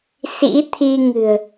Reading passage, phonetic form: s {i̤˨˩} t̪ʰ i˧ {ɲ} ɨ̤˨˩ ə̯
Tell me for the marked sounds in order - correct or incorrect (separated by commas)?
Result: incorrect, incorrect